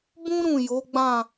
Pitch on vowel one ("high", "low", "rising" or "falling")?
high